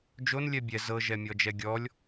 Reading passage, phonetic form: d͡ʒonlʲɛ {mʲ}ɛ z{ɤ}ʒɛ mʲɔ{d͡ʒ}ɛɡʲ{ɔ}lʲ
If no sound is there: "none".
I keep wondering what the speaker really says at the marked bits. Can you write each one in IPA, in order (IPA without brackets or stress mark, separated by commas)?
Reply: bʲ, ɤ, d͡ʒ, ɔ